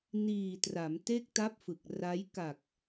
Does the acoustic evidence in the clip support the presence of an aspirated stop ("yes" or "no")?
no